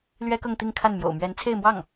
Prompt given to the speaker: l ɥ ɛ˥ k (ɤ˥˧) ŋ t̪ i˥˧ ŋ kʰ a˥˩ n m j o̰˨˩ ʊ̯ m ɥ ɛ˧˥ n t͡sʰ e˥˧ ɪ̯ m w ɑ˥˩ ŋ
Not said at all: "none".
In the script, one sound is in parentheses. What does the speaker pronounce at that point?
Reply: ɤ˥˧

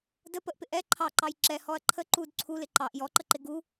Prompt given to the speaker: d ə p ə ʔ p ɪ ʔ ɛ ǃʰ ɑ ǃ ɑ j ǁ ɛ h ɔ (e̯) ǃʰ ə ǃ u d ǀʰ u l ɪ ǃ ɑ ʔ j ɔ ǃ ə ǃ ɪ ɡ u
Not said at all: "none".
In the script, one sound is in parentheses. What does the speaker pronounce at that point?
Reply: ɐ̯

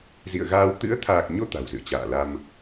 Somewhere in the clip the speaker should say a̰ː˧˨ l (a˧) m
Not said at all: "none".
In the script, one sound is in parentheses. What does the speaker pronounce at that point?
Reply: a˧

